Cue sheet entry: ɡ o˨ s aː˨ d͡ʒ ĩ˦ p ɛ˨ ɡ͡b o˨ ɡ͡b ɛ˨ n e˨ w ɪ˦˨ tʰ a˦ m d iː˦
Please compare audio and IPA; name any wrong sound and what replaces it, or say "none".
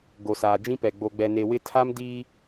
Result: none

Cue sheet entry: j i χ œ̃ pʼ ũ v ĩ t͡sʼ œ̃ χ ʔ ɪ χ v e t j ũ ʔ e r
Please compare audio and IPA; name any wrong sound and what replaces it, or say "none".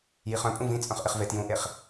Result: r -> χ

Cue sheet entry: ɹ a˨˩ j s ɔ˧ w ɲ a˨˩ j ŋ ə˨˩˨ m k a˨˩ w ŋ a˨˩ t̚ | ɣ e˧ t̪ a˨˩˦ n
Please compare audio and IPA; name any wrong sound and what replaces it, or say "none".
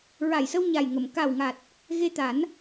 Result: ɔ˧ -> ə˧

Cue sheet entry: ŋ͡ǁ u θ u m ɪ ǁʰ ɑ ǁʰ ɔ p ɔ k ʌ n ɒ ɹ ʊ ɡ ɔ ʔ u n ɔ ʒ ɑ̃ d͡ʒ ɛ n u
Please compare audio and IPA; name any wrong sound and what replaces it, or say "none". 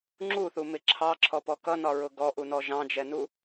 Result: none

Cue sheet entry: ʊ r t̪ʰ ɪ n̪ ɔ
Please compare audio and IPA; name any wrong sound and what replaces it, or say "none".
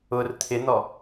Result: none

